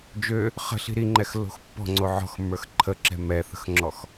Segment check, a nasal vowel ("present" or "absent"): absent